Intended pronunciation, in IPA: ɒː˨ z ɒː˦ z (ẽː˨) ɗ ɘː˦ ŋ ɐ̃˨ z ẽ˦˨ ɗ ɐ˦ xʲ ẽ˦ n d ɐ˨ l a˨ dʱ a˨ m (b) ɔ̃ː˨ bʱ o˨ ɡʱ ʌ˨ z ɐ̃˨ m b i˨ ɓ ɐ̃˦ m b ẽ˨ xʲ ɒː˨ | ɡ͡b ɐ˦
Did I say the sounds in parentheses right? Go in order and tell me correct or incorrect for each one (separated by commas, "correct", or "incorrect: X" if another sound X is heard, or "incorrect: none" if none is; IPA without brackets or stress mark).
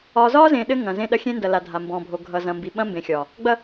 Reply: correct, correct